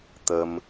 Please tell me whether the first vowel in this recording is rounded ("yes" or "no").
no